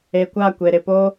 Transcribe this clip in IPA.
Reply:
e˨kʷa˦˨kʷe˨ ɾɪ˨po˦

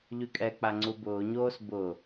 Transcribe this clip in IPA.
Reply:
ʎykʼɛk͡pa ŋ͡ǀubʊːɲoːs bʊ

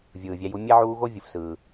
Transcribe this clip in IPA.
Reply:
vʲɯː˨vʲæ˦ju˥ mʲe˥ʕuː˦ɣo˥ vʲɯ˨fsɯː˨

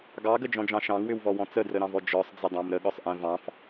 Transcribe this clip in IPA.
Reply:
ɡɑɡəd͡ʒɔ̃d͡ʒɑ̃ ʃɑ̃ŋwʏwvɔwɔ̃ t͡sədrəɾɑ̃vɔ d͡ʒɔsˤd͡zədˤɑ̃m ɾəɠɔsˤʔɛ̃ vɑ̃f

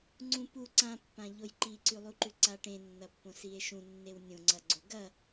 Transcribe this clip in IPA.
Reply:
ŋ͡ǀũ pu ǀãpːãʎoj ǃiǀʉlˠuǃʉ ǀaʈẽnːɐpːõ sie̯ʃũnːew nʲõŋ͡ǀɐ ɡ͡ǀoɡɐ

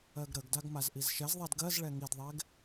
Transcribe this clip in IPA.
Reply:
ɜɡɾəɡdaɡ mazʔizʃɛzðˤɛd ɡɜzɭɛ ŋidðˤɛɡ

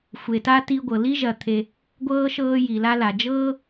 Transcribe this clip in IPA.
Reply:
xʷe˨ta˥ ti˦ ɡʷɤ˩li˥ʒɐ˨ t̪ʰe˨ | ɡʷɤː˥ ʃɤː˦ji˩la˦la˩ d͡ʒɤː˥

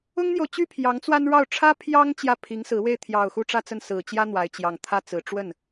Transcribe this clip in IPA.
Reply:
ʊ˥ŋn̪jo˨ʊ̯t͡ɕy˥ pʰjɑ˧˥ŋt͡swa˥nɻɑ˥˩ʊ̯ ʈ͡ʂʰä˥pʰjɑ˥ŋ t͡ɕjä˥˩pʰi˧˥ŋsɹ̩˧˥ we˥˩ɪ̯t̪ʰjɑ˨˩ʊ̯ xu˥˧ʈ͡ʂä˥˧t͡sə˥˩n sɹ̩˨˩t͡ɕjä˥ n̪wa˧˥ɪ̯t͡ɕjɑ˨˩ŋ t̪ʰä˥˩t͡sɹ̩˨˩ ʈ͡ʂwə˥˩n

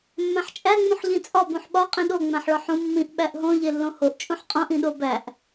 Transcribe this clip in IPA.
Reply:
mːæ̃ħt͡ʃʼæ ŋ͡mũħʎĩt͡sʼɒ bũħɓɒ qʼĩɗo ŋ͡mæ̃ħɭɒħũ mːĩʔ ɓæʔɦõ ʎelːõhoʔ t͡ʃʼũħqʼõʔ ĩɗobæʔ

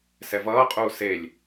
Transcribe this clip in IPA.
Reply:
sɛvʌːqʼuː selʲ

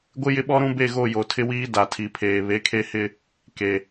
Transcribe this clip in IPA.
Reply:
ɡʷɪ˦jɪ˦ɓɔ˦ ɾũ˦be˦˨ɣo˦˨ jo˨tʰɪ˦wiː˦ da˨tʰi˨pʰeː˨ βe˨˦kʰe˦hɪ˦ | ke˨

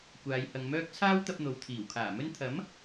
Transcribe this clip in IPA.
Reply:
kʷaː˨˧jhɐ˨ŋmœː˥k̚ t͡sʰaː˥wt̪ɐ˧p̚ n̪o˨wt̪ʰiː˨˩wkʰaː˨˩mɵ˥n t̪ʰɐ˨˥m

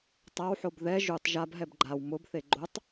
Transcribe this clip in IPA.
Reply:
tˤawħob ðɛ ʒutˤ ʒabɦɛb ɡ͡ǃaw mʊbθe ɡ͡ǃotˤ

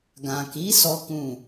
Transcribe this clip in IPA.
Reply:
ɡã˨ki˨˦ sɔ˦kũ˦˨

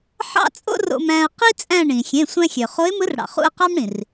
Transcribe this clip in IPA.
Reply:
ħɑ̰˥t͡sʼo̰˥ro̰˧m æ̃˧ə̯ qi˥ t͡sʼæ̃˥˧ɳĩ˩ xʲẽ˩˧˩sʷæ̃˧xʲø˩ χo˧˥ɪ̯mɯ˧˥rɽɑ̰˩ χṵ˥˧ə̯qɑ˥mɽĩ˩r

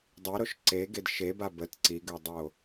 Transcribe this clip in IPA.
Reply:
dˤiɾoʃ ǀeɡed ʃeba bət ǀiɡødˤo

